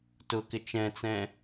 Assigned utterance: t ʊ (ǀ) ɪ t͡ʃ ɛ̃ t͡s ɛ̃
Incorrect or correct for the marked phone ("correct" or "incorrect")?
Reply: incorrect